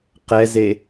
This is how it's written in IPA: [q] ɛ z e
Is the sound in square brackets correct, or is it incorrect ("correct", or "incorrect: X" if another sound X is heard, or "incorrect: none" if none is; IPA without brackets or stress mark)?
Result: correct